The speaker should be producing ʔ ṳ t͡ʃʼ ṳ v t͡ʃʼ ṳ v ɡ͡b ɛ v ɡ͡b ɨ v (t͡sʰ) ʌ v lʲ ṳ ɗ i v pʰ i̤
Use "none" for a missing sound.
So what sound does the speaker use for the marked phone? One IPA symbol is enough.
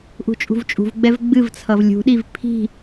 t͡sʰ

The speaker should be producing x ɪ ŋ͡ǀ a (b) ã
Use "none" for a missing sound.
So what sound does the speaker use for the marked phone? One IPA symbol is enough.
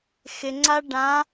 ɖ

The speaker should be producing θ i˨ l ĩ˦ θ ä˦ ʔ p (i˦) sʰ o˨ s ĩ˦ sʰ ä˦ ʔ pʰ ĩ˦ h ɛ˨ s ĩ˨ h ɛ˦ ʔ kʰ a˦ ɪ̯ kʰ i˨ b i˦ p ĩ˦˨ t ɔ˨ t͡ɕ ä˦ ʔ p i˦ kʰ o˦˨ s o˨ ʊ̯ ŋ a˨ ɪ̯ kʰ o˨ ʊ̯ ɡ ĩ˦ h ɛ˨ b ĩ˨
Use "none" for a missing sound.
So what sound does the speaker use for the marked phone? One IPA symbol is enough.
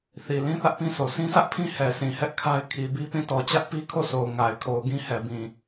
ĩ˦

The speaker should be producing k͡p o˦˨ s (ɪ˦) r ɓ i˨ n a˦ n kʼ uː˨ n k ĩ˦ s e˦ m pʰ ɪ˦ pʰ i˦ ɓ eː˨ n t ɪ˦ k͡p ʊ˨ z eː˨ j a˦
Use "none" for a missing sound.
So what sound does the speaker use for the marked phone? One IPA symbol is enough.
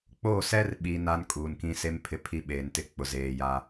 ɛ˦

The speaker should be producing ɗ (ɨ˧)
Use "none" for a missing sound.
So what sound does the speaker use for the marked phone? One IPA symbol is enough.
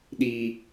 i˧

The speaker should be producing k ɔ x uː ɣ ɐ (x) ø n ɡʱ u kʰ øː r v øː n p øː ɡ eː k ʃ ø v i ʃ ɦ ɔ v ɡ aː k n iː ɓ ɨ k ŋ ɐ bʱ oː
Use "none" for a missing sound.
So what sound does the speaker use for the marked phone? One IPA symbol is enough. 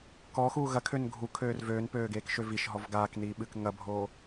kʰ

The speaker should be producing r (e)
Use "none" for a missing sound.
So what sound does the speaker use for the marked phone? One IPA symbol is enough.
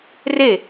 e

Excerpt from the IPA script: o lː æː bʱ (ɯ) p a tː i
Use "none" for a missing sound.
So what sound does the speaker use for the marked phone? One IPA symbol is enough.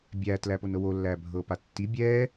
ɤ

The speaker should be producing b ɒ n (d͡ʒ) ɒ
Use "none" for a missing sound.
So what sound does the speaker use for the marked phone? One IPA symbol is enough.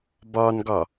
ɡ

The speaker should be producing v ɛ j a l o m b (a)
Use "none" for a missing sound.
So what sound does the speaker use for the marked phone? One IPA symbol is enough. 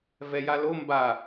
a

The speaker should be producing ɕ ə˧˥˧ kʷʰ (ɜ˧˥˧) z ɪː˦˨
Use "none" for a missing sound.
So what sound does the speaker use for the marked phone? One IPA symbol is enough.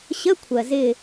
ɜ˨˩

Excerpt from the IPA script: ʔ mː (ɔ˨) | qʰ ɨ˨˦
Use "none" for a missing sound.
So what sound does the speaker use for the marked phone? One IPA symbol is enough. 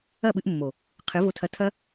o˨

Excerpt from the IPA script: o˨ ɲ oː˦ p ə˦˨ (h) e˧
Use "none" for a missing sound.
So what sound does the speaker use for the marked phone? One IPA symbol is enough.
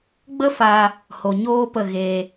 ɣ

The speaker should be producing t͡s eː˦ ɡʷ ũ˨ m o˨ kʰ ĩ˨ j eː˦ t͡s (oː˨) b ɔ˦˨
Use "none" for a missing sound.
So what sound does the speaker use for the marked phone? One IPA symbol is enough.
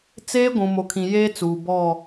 uː˨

